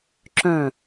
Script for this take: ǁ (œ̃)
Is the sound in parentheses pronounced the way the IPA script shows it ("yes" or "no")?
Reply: yes